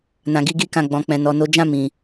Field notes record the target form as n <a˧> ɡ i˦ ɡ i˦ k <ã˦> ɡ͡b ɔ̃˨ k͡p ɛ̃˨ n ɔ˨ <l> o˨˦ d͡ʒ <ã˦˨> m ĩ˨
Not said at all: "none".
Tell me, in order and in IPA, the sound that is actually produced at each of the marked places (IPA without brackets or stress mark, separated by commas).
ã˧, ã˦˨, n, ã˦˨